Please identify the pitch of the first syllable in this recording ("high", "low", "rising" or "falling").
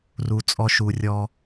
low